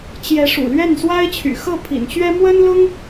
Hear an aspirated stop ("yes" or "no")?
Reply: yes